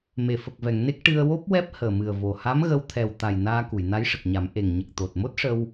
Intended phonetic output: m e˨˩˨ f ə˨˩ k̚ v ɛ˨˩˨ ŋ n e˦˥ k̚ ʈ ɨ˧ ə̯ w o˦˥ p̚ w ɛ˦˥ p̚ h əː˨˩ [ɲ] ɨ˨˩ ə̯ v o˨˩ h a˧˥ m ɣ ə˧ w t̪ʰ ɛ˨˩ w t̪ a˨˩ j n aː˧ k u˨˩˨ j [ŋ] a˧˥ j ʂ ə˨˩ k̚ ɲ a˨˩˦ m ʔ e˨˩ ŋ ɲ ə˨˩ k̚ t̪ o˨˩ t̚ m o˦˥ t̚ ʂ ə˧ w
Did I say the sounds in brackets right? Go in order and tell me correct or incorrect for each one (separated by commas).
incorrect, incorrect